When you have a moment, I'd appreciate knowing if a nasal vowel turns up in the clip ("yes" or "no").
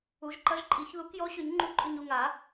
no